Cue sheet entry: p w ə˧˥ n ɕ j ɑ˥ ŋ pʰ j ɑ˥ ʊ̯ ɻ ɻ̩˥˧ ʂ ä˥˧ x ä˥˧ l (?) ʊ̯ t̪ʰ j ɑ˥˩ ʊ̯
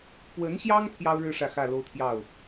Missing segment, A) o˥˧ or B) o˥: A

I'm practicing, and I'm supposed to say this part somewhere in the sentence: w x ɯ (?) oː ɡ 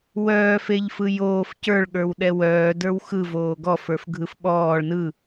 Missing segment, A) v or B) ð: A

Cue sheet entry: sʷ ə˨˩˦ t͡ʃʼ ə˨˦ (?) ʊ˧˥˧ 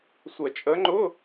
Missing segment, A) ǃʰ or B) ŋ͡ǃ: B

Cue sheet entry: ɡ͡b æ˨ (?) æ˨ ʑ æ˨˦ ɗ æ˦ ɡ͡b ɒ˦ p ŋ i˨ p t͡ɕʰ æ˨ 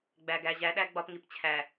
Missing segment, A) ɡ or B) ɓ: A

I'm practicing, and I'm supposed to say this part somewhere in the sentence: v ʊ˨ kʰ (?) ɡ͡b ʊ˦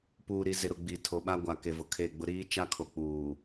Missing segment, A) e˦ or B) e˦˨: B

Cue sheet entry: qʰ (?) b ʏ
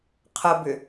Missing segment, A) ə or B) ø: A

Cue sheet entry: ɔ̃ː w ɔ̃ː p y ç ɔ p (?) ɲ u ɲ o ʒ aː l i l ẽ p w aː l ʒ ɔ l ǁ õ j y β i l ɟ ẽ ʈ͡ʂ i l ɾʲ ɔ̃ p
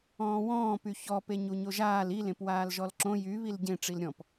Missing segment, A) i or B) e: B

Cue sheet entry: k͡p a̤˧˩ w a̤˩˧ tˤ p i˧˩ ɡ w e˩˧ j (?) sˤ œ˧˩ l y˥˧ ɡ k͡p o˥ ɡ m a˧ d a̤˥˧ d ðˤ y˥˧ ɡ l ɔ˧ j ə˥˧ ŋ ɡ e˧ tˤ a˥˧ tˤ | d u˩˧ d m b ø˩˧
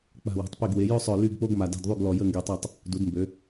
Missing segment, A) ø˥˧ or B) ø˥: A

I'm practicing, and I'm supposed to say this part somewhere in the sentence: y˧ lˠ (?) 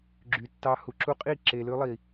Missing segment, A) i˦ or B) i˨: B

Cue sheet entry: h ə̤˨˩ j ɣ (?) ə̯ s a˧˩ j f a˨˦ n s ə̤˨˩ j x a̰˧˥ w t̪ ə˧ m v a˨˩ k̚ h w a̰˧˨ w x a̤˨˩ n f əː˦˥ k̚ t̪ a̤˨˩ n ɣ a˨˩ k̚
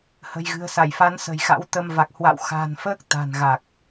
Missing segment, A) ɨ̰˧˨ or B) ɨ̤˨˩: B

